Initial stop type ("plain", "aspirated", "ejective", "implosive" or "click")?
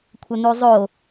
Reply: aspirated